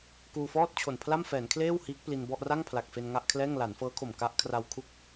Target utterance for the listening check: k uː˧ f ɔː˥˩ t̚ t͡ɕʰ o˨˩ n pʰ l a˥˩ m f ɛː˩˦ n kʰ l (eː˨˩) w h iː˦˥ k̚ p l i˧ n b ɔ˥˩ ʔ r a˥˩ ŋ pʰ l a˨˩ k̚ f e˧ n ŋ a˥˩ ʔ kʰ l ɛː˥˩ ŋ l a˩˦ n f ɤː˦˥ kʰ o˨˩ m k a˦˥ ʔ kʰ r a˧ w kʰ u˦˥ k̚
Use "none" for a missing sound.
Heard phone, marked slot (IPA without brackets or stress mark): eː˥˩